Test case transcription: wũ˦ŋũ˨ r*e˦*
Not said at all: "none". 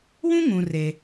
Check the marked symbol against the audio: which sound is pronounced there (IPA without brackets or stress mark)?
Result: e˦